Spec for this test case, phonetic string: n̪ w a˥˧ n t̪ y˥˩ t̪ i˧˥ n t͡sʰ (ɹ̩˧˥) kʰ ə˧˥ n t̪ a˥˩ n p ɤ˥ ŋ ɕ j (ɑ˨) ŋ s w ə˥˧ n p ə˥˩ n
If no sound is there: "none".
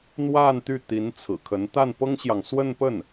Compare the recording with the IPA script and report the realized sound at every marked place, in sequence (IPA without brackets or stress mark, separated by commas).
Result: ɹ̩˨˩, ɑ˨